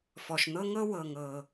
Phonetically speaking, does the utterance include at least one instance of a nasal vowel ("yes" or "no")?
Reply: no